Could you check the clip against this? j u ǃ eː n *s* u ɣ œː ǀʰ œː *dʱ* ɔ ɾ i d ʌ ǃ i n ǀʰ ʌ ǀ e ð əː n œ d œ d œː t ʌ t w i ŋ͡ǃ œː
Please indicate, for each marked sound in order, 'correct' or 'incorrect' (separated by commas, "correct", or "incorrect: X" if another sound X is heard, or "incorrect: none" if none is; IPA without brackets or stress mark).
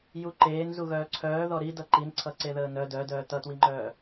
incorrect: z, incorrect: ð